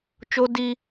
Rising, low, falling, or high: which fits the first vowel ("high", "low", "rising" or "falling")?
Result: high